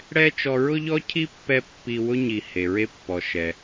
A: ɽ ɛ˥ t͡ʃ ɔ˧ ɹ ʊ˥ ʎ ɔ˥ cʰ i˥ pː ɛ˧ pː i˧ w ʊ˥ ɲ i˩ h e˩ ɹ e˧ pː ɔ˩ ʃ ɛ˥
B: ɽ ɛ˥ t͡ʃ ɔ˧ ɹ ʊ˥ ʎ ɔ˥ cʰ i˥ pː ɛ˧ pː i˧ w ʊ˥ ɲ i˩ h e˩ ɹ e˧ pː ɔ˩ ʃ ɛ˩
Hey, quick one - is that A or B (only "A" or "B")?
B